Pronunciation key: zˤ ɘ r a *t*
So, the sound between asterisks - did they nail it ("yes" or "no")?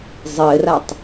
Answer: no